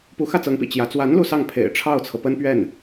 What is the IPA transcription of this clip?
p u˧˥ x ä˥˩ t͡s ɤ˧˥ ŋ p ḭ˨˩ t͡ɕ j ä˧˥ t͡s w a˧˥ n l u˥˧ s ɑ˥˩ ŋ pʰ ḛ˨˩ ɪ̯ ʈ͡ʂʰ ɑ˥˩ ʊ̯ t͡sʰ ɤ˩ p ə˥ n p ɥ ɛ˥˩ n

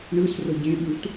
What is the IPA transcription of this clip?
ɳ ɯ s r o ɟ ẽ ɓ u t

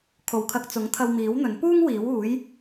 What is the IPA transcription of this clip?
kʰ o˨ w kʰ ɐ˧ k̚ t͡s ʊ˨˥ ŋ t̪ʰ ɐ˧ w m iː˨˥ w n̪ ɵ˨˥ n p uː˥ ŋ w iː˨˥ w uː˨˥ j

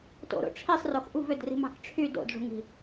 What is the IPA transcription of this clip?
t o̰ ɾ o̰ ʈ͡ʂʰ i sˤ r o x ʔ ṳ v ø d r i̤ m ɑ̤ k ʈ͡ʂʰ y d o̰ d ʐ ṳ ŋ i̤

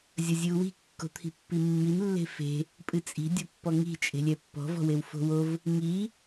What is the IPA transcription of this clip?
zʲ ɐ zʲ ɨ u̯ w i̤ kː o̤ t̪ʰ i̤ pː i mː i n lː e̤ f e̤ | pʼ ɨ t͡sʼ i̤ dʲ o pː ɔ ŋ i̤ t͡ʃʼ e̤ lʲ ɛ pː ɔ̤ v ɔ̤ w e w f o̤ w o v | ŋ i

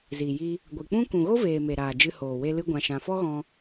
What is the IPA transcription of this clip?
z i˨ j i˧ | ɡʷ ɨ˨ k͡p ũ˦ k ũ˨ ɣ o˦ v eː˨ m e˨ ɾ aː˨ d͡ʒ ɨ˧ h oː˨ w e˧ l ɨ˦ ɡʷ ã˧ ʃ ã˧ f ɔ˦ ɣ ɔ̃˧

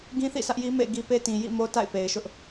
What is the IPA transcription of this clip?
ɡ ĩ˦ θ ḭ˦˨ s ä˦ ʔ j i˦ m ḛ˦˨ ɪ̯ ɡ i˦ p e˦ t ĩ˨ j ḭ˦˨ m o˦ t a̰˦˨ ɪ̯ p e˨ ɪ̯ ʃ ʊ˦ ʔ

